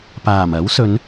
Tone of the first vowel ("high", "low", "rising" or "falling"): low